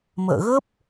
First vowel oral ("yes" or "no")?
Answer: yes